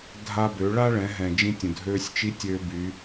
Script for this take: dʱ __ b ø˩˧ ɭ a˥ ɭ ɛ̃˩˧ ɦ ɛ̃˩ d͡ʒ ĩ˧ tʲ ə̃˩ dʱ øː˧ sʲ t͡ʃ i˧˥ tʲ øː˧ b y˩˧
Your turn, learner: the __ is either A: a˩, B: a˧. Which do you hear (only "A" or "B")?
B